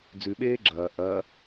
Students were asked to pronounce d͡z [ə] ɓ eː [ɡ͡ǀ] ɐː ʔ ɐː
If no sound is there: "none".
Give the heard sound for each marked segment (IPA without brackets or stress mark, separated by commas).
ʉ, ɡ͡ǁ